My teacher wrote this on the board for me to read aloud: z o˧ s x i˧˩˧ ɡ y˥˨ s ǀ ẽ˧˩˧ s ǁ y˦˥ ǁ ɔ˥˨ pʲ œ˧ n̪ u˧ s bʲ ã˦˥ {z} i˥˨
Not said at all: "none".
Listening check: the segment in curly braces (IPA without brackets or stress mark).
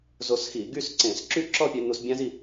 z